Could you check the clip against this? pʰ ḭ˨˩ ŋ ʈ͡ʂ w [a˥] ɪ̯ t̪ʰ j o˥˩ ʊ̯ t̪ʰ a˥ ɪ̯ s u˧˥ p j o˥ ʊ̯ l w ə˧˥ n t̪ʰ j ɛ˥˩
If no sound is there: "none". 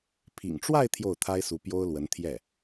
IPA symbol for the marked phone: a˥˧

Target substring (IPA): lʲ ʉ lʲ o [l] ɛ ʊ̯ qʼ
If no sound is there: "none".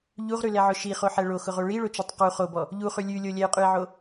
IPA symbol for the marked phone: lʲ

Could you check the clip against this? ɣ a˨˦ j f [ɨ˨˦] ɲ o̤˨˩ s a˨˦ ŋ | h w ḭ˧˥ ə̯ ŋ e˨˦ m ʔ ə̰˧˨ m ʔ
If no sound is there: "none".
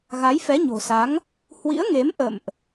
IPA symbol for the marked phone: ɛ˨˦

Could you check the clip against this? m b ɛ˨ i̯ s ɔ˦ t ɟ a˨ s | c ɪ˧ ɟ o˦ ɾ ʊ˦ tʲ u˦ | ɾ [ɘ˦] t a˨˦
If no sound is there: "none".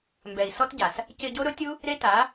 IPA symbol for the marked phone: e˦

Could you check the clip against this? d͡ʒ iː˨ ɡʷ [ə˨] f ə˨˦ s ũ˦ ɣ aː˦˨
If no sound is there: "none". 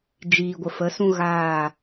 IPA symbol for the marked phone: ə˨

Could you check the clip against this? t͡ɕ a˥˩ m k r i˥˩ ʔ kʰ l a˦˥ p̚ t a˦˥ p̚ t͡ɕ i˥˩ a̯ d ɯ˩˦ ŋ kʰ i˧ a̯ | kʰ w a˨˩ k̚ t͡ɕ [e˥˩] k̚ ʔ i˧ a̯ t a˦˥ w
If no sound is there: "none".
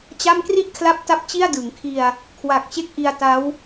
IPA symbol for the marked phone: e˥˩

